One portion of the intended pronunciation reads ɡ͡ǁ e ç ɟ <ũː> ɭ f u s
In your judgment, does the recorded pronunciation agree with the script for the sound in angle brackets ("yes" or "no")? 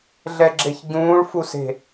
yes